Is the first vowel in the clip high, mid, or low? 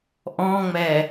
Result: mid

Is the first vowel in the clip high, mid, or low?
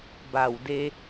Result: low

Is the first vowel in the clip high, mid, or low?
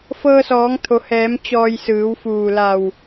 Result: mid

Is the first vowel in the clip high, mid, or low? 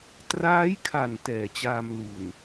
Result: low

